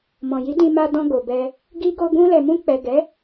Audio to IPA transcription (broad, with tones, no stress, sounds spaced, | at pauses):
m ɔ̃˨ j i˨˦ d ĩ˧ m a˧ d ɔ̃˧ ɡ o˨ b ɛ˧ | ɡ i˧ ɡ o˧ ɡ ũ˧ l ɛ˨ m ũ˧ k͡p ɛ˨ ɡ ɛ˨˦